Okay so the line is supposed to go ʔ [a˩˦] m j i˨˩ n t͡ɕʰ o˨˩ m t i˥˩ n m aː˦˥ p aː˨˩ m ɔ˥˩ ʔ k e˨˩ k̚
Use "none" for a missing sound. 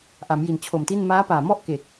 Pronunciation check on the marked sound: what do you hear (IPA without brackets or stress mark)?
a˩˦